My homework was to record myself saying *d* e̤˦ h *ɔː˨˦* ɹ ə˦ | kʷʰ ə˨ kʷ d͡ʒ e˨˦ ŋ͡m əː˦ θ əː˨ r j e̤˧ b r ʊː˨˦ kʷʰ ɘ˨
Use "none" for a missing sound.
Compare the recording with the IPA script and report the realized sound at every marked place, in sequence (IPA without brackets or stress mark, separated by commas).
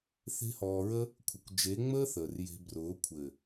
θ, ɔː˧